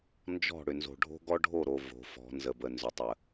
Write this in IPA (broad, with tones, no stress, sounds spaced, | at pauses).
n d͡ʒ ɔ̤˦˨ ɽ ʏ˨ n z o̤˨ ɖʱ o̤˦ ɡ ɔ˦ ɖʱ o˦˨ ɾ o˨ v o̤˨˦ f ɔ̤˨˦ n z ə˨ b ə˨ n z ʏ˨ tˤ ə˨